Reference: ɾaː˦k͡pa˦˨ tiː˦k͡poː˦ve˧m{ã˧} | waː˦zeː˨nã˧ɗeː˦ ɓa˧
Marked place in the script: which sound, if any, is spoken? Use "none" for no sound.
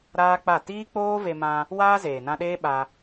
ã˧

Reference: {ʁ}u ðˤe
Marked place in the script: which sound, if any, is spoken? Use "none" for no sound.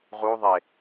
ʁ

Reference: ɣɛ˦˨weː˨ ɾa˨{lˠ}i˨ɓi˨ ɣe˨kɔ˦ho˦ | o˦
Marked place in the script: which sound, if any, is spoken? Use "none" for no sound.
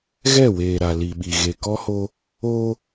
l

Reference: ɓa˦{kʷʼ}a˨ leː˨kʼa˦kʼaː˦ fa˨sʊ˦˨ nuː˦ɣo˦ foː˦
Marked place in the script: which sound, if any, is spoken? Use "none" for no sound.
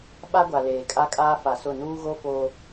ɡʷ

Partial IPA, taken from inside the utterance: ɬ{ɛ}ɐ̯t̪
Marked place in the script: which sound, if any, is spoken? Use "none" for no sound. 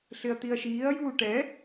ɪ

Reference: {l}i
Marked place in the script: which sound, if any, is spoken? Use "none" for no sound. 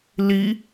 l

